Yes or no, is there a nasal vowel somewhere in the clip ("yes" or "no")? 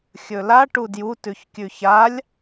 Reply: no